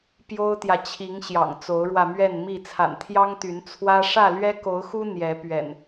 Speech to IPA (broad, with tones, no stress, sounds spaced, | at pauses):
p j o˦ ʊ̯ t̪ j ä˨ t͡ɕʰ i˨˦ ŋ ɕ j ɑ̰˨˩ ŋ t͡s o˨˦ ʊ̯ ɻ w ä˧ m ɥ ɛ˥˨ n m i˥˨ t͡sʰ a̰˨˩ n t̪ʰ j ɑ˦ ŋ t̪ y˨˦ n t͡sʰ w ä˦ ʂ ä˥˨ l ɥ ɛ˦ k o˨˦ ʊ̯ x u˦ n̪ j ɛ˨˦ p ɥ ɛ̰˨˩ n